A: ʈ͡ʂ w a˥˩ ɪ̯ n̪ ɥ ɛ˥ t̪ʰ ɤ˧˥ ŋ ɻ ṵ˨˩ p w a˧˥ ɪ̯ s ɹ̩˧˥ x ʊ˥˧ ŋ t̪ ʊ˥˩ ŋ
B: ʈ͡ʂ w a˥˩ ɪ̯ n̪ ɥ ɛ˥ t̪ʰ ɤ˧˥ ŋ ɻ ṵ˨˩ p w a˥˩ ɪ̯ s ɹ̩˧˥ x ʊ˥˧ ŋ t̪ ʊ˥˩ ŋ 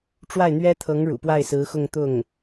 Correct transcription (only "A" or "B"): B